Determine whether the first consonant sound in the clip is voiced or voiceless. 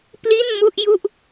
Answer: voiceless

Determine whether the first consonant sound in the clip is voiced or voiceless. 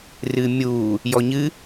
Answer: voiced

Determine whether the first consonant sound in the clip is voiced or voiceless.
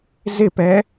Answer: voiced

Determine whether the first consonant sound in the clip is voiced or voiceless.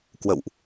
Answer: voiceless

